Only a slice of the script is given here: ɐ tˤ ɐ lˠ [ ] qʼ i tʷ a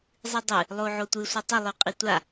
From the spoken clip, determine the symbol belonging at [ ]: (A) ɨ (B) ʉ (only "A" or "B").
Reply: B